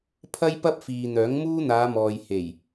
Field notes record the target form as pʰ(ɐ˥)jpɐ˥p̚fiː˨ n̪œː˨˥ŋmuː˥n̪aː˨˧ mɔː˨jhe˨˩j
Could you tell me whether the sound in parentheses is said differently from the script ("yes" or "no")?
no